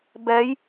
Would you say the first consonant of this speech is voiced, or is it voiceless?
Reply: voiced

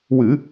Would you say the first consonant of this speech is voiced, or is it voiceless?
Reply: voiced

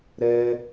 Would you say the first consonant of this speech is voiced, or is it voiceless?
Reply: voiced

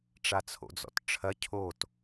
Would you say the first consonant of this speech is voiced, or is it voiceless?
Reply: voiceless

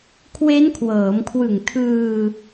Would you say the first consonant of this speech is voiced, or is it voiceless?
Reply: voiceless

